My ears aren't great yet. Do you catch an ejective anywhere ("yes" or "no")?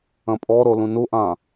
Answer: yes